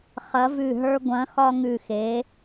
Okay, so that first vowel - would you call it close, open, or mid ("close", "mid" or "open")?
open